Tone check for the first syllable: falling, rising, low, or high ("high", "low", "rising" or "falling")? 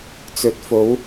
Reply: rising